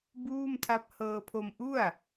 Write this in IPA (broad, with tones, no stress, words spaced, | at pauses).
buː˥˩mtʰa˦˥p̚ hɤː˧pʰo˧m ʔu˥˩a̯